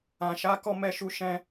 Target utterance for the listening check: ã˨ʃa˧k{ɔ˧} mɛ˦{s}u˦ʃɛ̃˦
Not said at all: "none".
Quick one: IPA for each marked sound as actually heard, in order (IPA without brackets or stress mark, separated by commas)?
ɔ˧, ʃ